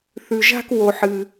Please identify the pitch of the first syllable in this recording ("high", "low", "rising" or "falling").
low